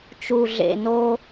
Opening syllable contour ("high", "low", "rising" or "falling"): low